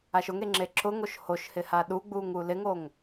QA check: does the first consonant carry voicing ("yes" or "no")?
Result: no